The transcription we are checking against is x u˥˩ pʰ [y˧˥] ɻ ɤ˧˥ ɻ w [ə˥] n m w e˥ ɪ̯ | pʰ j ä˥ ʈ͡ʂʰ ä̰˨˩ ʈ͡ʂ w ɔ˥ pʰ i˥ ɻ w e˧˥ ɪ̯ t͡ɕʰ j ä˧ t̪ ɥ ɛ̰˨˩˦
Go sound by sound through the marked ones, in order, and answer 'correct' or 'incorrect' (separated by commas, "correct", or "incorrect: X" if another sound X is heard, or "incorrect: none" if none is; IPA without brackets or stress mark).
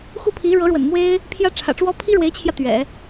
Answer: incorrect: i˧˥, incorrect: ə̰˨˩